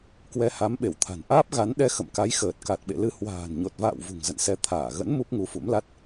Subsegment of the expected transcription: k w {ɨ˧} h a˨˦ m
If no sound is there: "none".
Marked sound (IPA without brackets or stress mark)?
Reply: ɛ˧